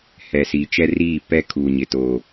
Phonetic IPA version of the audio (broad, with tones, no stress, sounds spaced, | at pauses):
h ɛ˨ s iː˨ t͡ʃ ɛ˦ r iː˦˨ p ɛ˦ kʰ u˨ ɲ ɪ˨ t o˨